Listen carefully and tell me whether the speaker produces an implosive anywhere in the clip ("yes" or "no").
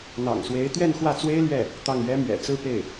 no